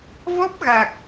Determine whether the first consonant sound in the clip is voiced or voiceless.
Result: voiced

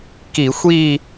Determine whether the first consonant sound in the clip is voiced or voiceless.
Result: voiceless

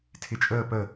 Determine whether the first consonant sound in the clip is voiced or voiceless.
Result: voiceless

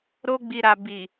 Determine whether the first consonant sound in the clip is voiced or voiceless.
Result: voiced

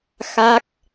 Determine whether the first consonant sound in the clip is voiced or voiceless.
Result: voiceless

